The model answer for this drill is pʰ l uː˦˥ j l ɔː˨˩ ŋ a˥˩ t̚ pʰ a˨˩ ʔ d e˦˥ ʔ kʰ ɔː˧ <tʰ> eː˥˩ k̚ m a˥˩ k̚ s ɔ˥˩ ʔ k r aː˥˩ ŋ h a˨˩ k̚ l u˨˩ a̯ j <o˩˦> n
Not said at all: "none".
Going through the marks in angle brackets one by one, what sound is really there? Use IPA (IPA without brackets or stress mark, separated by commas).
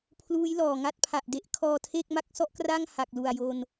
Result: tʰ, o˧